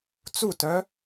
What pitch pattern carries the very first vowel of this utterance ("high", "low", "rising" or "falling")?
falling